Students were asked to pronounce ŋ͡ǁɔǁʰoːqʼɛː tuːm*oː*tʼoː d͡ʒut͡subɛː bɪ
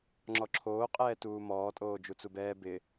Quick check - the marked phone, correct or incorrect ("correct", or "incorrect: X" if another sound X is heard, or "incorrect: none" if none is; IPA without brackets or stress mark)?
incorrect: ɔː